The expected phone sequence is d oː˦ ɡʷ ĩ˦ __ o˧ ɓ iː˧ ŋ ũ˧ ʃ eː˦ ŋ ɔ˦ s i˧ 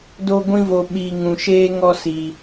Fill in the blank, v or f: v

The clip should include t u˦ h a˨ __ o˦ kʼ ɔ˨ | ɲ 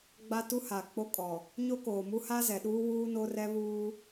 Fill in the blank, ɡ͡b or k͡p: k͡p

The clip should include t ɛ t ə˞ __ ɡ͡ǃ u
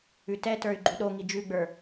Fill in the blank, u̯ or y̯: y̯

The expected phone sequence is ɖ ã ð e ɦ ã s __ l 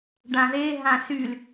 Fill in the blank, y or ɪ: y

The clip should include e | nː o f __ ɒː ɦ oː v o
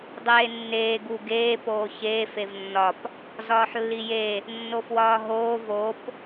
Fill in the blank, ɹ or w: w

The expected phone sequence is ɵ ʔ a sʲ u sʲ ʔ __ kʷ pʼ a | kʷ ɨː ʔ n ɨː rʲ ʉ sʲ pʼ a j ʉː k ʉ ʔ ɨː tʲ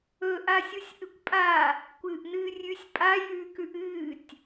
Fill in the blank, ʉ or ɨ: ɨ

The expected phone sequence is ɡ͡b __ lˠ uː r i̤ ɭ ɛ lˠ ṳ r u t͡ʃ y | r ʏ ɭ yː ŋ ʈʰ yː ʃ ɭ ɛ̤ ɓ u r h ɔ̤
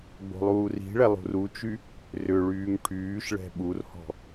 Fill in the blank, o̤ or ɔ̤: o̤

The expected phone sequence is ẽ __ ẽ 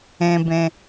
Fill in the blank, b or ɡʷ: b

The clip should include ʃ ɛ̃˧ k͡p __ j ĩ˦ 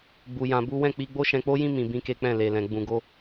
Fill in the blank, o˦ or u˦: o˦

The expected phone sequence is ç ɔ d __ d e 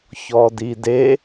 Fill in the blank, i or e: i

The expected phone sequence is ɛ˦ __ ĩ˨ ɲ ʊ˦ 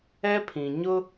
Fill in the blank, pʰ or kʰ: pʰ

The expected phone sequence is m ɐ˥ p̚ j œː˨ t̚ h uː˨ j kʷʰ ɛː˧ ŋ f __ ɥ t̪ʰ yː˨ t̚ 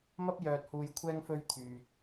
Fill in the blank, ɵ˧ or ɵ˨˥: ɵ˧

